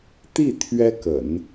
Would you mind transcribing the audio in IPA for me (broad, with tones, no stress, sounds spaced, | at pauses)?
t̪ i˥˩ t̪ʰ ɥ ɛ˥ k ə̰˨˩˦ n